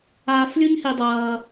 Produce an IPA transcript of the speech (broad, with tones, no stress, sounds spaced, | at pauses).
aː˦ f lʲ u˥ ɲ h i˦ dˤ ʌː˦